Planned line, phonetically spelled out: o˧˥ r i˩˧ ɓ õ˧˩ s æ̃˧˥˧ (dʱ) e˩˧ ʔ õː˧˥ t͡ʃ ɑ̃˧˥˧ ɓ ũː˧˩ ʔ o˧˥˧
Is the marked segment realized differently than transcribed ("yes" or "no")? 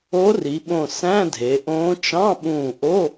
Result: no